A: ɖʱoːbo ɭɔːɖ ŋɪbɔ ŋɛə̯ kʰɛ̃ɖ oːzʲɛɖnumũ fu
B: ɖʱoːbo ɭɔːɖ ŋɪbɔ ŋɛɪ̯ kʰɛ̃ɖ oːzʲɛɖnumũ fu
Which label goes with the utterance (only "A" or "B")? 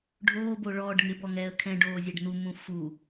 A